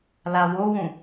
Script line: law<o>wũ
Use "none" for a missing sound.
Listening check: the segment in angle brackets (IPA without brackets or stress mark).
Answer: o